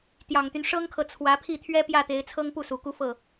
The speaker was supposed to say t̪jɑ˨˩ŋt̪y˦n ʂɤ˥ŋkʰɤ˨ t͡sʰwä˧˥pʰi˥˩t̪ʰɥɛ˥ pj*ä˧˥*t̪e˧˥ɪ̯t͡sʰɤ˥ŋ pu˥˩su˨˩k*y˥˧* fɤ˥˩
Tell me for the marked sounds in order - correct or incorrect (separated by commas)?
incorrect, incorrect